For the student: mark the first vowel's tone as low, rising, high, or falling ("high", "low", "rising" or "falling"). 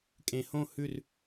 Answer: low